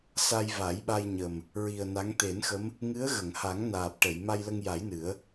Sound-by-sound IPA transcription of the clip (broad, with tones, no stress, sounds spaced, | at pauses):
s a˧ j v a˨˩˦ j ɓ a˧ j ɲ ə˨˩ m | ɹ i˨˩ ə̯ n a˧˥ ŋ t̪ e˨˩˦ n x ə˧˥ m | ŋ ɨ˧˥ ə̯ ɣ ə˨˩˨ ŋ h a˨˩˦ ŋ n aː˨˩ p̚ ʈ ə˨˩˨ j m a˧ j l ə˧ ŋ j a˨˩˦ j n ɨ˨˩˦ ə̯